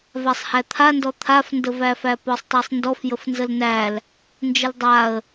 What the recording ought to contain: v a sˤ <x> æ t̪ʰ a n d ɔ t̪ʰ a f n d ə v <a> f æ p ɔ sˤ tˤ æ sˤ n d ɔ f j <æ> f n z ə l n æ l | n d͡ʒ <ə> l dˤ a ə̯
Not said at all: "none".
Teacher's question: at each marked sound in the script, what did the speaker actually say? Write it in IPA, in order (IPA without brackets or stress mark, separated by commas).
h, æ, ə, ə